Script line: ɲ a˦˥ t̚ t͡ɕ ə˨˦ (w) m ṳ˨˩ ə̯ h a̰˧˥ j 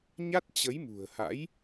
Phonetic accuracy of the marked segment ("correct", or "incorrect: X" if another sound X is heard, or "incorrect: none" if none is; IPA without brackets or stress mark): incorrect: j